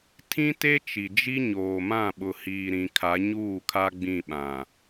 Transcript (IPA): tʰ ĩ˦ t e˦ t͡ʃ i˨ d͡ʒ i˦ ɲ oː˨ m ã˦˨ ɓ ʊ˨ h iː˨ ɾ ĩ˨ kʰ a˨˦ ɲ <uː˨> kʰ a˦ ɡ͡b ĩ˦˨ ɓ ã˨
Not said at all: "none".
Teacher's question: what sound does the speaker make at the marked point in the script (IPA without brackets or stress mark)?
uː˦˨